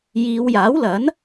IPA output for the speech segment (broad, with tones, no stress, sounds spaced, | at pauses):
j iː˨˧ w j aː˨˥ w l ɐ˨˥ n